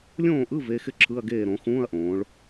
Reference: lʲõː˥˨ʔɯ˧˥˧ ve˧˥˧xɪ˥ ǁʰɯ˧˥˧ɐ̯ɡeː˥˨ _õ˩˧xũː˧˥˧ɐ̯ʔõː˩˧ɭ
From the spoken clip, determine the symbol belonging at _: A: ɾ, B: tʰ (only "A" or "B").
A